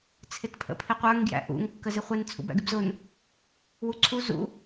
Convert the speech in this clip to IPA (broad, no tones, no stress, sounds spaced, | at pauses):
t͡sʰ ɪ t pʰ ə̰ pʰ ɪ qʷ ə˞ ŋ ɡ j æ̰ ʔ ṵ ŋ kː ə z ɪ χʷ ɪ n t͡sʰ ṵ b æ̰ ɡ ɪ b z ʊ n | w u ǀʰ u z ṵ